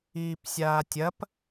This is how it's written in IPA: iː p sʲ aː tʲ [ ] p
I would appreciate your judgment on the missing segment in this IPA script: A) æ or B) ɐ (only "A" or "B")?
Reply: B